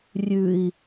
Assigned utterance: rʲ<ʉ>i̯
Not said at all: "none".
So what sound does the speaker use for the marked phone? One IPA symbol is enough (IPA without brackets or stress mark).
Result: ʉ